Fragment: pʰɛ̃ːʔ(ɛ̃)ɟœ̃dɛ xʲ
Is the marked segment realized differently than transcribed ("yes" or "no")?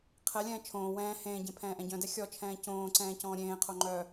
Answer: no